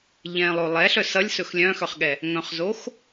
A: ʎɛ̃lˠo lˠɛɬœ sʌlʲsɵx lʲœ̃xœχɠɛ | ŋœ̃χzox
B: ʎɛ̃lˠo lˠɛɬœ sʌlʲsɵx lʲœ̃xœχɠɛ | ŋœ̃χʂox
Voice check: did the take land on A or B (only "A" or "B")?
A